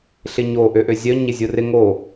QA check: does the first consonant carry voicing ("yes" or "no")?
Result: no